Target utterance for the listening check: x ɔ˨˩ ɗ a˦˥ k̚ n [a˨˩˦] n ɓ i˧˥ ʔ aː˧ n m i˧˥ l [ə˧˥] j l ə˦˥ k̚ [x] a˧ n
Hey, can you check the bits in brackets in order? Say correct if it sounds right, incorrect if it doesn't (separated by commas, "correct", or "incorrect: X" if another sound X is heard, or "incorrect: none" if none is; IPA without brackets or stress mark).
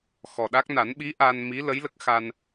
correct, correct, correct